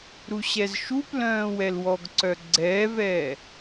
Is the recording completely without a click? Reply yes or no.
no